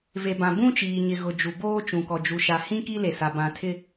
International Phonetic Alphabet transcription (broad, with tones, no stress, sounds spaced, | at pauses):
v e˨ b ã˨ b ũ˦ t͡ʃ iː˨ ɲ ɪ˨ ɣ ʊ˨ d͡ʒ u˨ b oː˦ t͡ʃ ũ˨ k ɔ˨ d͡ʒ u˨ ʃ a˨ h ĩ˦ k i˦ l e˨ s a˨ b ã˨ tʰ ɪ˦